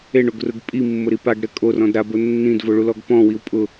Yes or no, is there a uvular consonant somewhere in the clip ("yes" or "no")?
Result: no